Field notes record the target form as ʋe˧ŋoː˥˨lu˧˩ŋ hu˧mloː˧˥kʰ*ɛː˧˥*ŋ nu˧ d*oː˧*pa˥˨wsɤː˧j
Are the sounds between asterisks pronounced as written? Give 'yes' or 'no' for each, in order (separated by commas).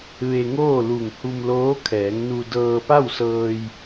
no, no